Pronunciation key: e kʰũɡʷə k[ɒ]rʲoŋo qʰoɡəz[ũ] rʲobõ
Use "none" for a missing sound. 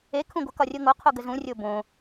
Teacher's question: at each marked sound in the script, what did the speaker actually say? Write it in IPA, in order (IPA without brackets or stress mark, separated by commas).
ɒ, ũ